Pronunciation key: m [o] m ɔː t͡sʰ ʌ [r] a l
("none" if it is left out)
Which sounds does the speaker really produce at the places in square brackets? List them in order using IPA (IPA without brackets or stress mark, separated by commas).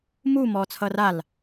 u, r